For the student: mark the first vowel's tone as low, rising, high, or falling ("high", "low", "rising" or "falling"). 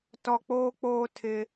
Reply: low